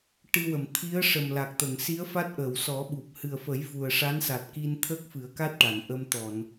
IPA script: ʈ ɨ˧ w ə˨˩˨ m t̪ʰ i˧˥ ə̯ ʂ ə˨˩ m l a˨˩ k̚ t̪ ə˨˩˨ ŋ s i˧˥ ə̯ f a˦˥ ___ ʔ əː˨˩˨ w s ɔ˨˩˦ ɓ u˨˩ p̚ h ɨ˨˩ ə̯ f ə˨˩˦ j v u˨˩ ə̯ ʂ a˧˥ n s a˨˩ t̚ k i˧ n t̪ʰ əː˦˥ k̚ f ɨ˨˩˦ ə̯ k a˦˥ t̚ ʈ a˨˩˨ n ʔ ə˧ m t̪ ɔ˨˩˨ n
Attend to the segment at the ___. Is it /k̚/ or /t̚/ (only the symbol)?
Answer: t̚